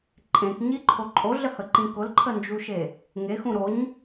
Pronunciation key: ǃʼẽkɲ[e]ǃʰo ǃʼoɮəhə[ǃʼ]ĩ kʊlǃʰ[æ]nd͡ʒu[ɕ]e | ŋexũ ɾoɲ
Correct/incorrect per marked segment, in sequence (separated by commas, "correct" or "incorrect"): incorrect, incorrect, incorrect, incorrect